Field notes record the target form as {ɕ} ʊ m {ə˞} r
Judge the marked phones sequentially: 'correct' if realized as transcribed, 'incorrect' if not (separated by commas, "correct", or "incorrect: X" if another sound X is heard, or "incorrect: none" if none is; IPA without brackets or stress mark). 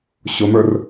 correct, correct